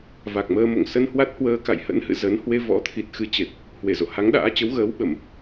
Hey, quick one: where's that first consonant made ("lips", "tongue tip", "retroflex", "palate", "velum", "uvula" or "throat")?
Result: lips